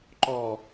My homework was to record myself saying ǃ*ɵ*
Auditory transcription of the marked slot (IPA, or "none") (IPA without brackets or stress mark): ɔ